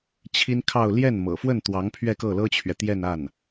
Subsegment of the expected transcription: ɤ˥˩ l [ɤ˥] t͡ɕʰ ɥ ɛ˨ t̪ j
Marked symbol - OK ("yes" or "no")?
yes